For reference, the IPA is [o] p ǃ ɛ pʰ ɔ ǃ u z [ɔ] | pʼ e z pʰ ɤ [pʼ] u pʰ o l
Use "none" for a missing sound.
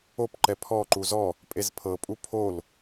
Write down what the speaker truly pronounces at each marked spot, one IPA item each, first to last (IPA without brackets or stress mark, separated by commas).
o, ɔ, pʼ